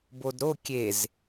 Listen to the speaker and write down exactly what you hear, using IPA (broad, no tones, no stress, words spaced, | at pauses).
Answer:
bodɾo kʲez